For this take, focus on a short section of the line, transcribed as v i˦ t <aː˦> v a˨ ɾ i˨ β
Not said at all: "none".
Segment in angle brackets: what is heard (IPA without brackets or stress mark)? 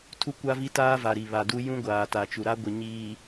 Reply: aː˦